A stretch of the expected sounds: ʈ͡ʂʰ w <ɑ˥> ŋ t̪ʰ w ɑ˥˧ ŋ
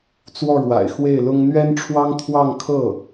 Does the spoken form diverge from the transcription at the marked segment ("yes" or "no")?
no